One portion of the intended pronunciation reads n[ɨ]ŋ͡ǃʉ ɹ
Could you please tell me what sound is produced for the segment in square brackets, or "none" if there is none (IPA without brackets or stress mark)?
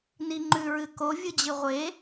i